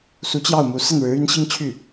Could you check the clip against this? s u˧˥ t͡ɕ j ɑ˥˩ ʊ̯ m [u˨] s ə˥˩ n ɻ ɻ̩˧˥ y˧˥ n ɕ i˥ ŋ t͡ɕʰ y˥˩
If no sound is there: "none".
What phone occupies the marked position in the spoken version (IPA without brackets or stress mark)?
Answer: u˧˥